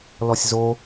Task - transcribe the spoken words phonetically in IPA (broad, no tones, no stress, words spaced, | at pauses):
lɔsʲzo